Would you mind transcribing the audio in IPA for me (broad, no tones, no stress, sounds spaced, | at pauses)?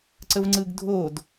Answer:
ǀ ə v ŋ͡ǀ ɯ ɡ dʱ o d